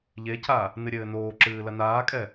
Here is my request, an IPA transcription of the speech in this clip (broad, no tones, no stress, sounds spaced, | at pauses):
ʎ e cʰ a | n ɨ ɾʲ ɘː n oː ǁ ɨː l ɐ n aː kʼ ɛ